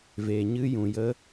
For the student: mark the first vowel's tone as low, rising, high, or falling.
low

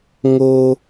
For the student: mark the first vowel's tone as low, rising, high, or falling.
high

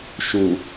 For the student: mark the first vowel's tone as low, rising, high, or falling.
low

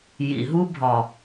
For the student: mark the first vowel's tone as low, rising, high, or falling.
low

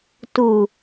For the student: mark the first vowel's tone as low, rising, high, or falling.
low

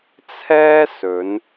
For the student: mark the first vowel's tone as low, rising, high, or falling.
high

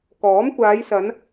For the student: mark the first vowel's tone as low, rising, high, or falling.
rising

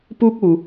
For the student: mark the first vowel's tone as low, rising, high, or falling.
high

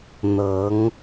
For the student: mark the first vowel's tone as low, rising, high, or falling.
rising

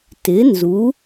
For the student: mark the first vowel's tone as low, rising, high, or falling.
rising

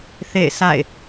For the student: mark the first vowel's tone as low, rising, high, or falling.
falling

